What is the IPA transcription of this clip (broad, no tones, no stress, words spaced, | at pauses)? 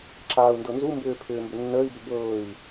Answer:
ǁaːu̯ndɤnzumbʏː pʰʏːmbʏnːəːi̯bʏ bɤːi̯